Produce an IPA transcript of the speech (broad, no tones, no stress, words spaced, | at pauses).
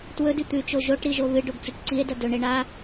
twɵdʉ t̪ʉt͡ʃo ʒoʈɾiʒo βɨɖoɡt͡suʈ ǀie̯dɐ dɵɳe ɳa